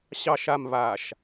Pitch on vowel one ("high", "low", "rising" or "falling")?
low